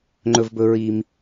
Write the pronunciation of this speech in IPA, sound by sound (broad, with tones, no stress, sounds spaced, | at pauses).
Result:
ŋ͡ǃ ɵ˨ v b ɵ˨ ɹ i˨ m